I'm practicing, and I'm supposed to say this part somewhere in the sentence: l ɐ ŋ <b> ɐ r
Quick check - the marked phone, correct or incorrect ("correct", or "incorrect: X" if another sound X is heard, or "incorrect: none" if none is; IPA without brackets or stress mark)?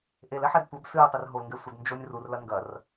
incorrect: ɡ